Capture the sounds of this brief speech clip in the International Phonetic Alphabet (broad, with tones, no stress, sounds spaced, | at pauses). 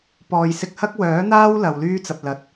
p ɔː˨ j s ɪ˧ k̚ h ɐ˥ k̚ w œː˨˥ n̪ aː˥ w l ɐ˨ w l yː˥ t͡s ɐ˨ p̚ l ɐ˨˥ t̚